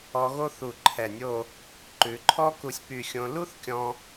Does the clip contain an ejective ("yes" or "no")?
no